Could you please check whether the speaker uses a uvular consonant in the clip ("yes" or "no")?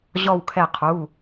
yes